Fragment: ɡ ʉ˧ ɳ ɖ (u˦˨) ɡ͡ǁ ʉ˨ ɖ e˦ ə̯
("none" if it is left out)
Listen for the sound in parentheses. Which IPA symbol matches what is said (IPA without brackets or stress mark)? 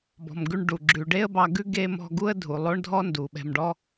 u˨